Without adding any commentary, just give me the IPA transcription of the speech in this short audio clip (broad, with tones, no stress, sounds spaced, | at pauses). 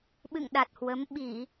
ɓ ɨ̰˧˨ ŋ ɗ a˨˩ t̚ h w ə˨˦ m ɓ i˧˩˨